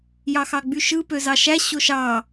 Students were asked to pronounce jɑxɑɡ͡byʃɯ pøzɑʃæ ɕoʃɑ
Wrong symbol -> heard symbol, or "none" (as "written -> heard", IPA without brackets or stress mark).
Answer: none